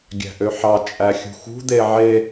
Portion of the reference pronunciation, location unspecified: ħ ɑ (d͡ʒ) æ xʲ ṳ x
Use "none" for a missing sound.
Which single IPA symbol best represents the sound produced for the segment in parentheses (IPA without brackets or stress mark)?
t͡ʃʼ